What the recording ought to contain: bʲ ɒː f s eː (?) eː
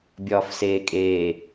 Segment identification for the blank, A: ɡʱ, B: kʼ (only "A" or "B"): B